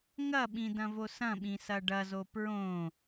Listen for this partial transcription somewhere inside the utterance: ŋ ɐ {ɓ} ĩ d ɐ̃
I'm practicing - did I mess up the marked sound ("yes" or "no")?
no